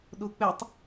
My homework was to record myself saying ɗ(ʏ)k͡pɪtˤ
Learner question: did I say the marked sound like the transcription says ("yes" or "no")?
no